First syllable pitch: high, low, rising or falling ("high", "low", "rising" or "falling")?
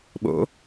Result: rising